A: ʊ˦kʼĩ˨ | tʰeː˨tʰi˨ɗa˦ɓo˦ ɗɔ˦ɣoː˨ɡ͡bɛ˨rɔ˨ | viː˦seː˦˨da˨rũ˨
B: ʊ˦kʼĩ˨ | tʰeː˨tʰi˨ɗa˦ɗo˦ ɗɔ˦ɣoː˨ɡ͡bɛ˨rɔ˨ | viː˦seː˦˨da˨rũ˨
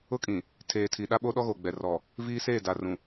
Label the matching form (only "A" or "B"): A